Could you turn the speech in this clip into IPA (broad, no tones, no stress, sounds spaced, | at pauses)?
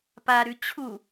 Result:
p a ɾ ʉ t͡ɕʰ u